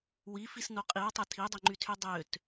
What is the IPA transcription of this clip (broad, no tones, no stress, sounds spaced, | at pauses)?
w i f i s n o qʼ i w tˤ ɛ tʰ i dˤ e ŋ͡ǃ y tʰ y dˤ ø t